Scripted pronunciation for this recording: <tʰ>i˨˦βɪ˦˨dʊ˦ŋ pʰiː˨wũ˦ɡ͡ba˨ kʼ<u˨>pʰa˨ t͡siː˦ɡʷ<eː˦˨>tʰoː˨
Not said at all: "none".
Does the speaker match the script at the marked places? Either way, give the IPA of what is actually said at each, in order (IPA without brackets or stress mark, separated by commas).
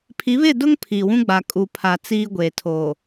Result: pʰ, u˨, eː˨